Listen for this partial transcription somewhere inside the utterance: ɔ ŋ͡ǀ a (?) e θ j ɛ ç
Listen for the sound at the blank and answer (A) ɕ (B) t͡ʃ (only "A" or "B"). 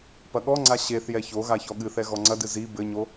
A